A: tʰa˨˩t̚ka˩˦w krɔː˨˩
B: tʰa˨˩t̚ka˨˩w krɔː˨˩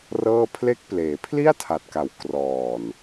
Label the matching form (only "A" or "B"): B